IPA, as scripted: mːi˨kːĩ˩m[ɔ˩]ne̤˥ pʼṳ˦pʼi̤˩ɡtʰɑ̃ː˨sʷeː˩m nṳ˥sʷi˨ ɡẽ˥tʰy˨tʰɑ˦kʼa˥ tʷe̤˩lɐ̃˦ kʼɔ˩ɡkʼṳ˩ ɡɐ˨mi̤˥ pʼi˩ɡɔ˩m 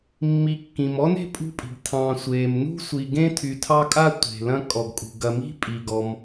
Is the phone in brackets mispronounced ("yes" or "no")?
yes